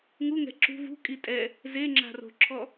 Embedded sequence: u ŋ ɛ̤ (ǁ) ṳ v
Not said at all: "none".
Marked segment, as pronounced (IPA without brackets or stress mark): ǁ